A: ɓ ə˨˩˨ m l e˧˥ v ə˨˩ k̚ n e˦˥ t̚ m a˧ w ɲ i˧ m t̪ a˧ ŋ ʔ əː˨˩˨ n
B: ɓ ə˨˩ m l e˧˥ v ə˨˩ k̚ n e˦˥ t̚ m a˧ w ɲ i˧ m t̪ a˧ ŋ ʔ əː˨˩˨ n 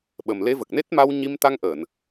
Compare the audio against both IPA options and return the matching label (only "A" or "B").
B